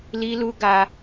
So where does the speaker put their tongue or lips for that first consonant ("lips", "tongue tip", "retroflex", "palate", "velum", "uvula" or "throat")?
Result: tongue tip